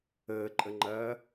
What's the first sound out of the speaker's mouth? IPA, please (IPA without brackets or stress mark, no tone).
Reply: əː